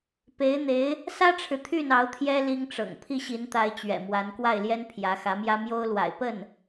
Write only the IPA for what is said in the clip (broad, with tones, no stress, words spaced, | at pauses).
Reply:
pe˧˥ɪ̯n̪e˧˥ɪ̯ | sä˥ʈ͡ʂʰɻ̩˨ t̪ʰy˥˩n ɑ˧˥ʊ̯t̪ʰjɛ˥ li˥ŋʈ͡ʂɤ̰˨˩ŋ pʰi˥˩ɕi˧˥nt̪a˧˥ɪ̯ t͡ɕɥɛ̰˨˩mwa˧˥n kwa˥˩ɪ̯ljɛ˥n pʰjä˧˥xä˧˥mjä˥ mjo˥ʊ̯lwa̰˨˩ɪ̯ pə˥˩n